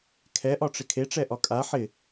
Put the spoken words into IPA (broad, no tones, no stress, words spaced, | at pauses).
kʰɛʔɒʈ͡ʂɪ kʰeʈ͡ʂɛʔɒ kʼa ħɪ